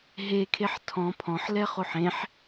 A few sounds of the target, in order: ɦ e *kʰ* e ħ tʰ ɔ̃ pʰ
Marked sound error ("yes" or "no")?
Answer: no